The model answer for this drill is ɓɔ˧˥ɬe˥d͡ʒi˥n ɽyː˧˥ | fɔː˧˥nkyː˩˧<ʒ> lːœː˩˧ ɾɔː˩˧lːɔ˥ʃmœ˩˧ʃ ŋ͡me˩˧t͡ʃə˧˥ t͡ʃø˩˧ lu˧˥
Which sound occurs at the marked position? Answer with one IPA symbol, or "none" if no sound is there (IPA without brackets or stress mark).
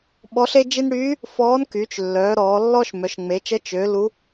t͡ʃ